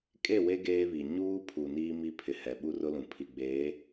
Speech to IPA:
kʼ e˦˨ w e˦ ɡ eː˦ β i˨ ɲ uː˦ pʰ u˨ n iː˦ m i˦ pʰ ɪ˨ h ɛ˨ ɓ u˦ r ʊ˦ l ũ˨ pʰ i˨ ɡ͡b eː˨˦

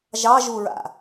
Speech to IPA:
ʒ ɑ ʒ u ɹ a̰

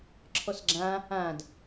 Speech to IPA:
ǁʰ ɔ s ɡ͡ǁ ã | ã d

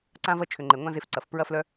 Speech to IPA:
ǀ ã˦ v ɐ˦ t͡ʃʰ ʏ˨ ŋ͡ǃ e˨ ŋʷ ã˦ z e˧ f ǀ ɐ˨ f p ɹ ɐ˦ f l œ˦

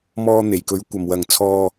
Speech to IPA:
m ɔː˧ n̪ e˨˩ j k ɵ˨˥ ɥ kʷ ɐ˨ m w ɐ˨ ŋ t͡sʰ ɔː˧

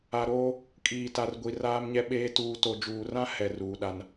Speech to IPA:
a˨ ɾ oː˦ | kʼ iː˨ t a˨ r ɡʷ i˨ r aː˦ m ɲ ɛ˦ ɓ eː˦ t uː˨ t o˨ d͡ʒ uː˨ r ã˦ h ɛ˨ r uː˨ ɗ a˦ n

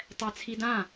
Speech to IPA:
tˤ ɛ t͡sʰ i d ã

